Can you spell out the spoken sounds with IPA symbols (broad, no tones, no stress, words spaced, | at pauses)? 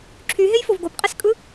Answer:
ǁʰyɦejfov ɡopqʼiskʼɯ